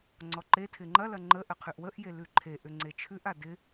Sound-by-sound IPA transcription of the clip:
ŋ͡ǀ ɔ ǃ e tʰ ɪ ŋ͡ǃ ɐ l ɐ ŋ͡ǃ ə ʔ ə qʰ ʉ ʔ w ə ʔ j e l ʉ ǃʰ e ʔ ʏ ŋ͡ǀ e t͡ʃʰ ʉ ʔ a d ɪ

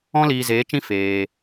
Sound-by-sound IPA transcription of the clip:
ɔ̃˦ l iː˧ z eː˨˦ t͡ʃ ĩ˦ f eː˧

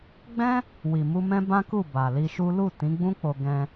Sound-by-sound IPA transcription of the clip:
ɡ͡b ɛ̃˦ | w i˨ m u˧ m ɛ̃˦ b ã˦ k u˦˨ b a˨ l i˧ ʃ u˦ l u˦˨ t ĩ˨˦ ɡ͡b ũ˦ k͡p o˧ ɡ ɛ̃˧

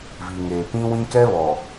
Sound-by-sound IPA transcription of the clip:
v i˨ ŋ eː˨ p ĩ˦ w ĩ˦ k ɛ˦ β ɔ˨

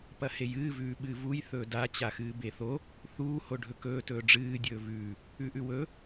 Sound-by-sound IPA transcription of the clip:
p ɐ h e j ɨː v ʉː ɓ ɨː v u j θ ɵː d a t͡ɕ a x ɨː b e θ o | θ uː h o ɖʱ ɵ k ɵː t ɵː ɖ͡ʐ ɨː dʲ ɵː v ʉː | ʉ ʔ ʉ w ɵ

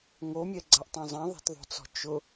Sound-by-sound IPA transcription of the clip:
ŋ o mʲ ɛ ɡ͡ǀ a ʔ tˤ õ zˤ ɛ̃ ðˤ ɛ̤ t ðˤ o̤ t͡s ɔ̤ t͡ʃ ʊ

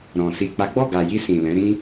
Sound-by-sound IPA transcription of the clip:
ɾ ɔ̃˨ s i˨ k͡p a˨˦ ɡ͡b ɔ˦˨ ɡ a˨ j i˧ s ĩ˨ l ɛ̃˨˦ ɾ ĩ˦

